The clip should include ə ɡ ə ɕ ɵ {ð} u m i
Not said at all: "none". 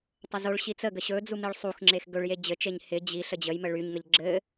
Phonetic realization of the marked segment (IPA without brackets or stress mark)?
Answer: d͡z